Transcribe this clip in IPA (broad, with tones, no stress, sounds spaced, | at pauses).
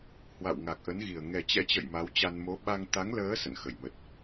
h w a̰˧˨ w ŋ a˨˩ k̚ ʔ ə˨˦ n ɣ i˨˩ ə̯ ŋ ɛ˨˩ t͡ɕ ɛ̰˧˥ t͡ɕ ə̰˧˨ j m a˨˦ w t͡ɕ a˧ n m o˨˦ ɓ a˧ ŋ t̪ a˨˦ ŋ l əː˨˦ s ə̰˧˨ n x ə˧˩ j m ə˨˩ t̚